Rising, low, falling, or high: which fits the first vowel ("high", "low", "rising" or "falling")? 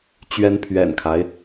rising